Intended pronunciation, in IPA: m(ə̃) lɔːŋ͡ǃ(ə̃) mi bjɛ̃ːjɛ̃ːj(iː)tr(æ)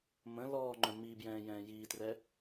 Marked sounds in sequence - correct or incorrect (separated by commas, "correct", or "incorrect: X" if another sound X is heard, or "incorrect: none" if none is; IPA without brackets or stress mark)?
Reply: correct, incorrect: œ̃, correct, incorrect: ɛ